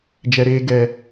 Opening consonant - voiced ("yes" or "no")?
yes